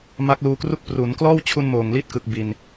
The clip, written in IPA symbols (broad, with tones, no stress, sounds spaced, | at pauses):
m a˦˥ k̚ l uː˧ k r u˥˩ k̚ p r uː˩˦ n k l ɔː˥˩ w t͡ɕʰ u˧ n m oː˨˩ ŋ l i˥˩ t̚ k ɯ˨˩ k̚ b i˨˩ n